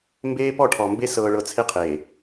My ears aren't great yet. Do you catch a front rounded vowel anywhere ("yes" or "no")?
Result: no